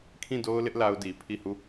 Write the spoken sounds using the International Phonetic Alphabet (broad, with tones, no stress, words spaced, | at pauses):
kʰĩ˦˨do˦ʊ̯lɪ˦ʔ la˦ʊ̯di˨ pʰi˦˨hu˦˨